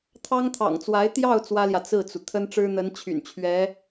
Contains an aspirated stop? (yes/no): yes